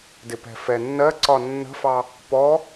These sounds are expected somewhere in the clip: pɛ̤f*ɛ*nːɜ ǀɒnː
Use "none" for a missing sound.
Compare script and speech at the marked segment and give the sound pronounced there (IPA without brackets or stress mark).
ɛ